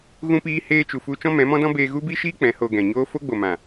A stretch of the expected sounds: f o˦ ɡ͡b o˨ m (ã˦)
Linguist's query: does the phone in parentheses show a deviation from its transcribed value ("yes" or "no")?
yes